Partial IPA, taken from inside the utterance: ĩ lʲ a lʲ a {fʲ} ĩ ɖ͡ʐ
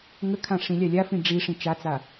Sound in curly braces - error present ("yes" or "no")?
yes